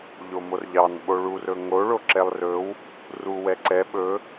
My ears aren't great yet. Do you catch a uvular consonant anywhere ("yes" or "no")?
no